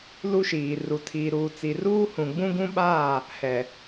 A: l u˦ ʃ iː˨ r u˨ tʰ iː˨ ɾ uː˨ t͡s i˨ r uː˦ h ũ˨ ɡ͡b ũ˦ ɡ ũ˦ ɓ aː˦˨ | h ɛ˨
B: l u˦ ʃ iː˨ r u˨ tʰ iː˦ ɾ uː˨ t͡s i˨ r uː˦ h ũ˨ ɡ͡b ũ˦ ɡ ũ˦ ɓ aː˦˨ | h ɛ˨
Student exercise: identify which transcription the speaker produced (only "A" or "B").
A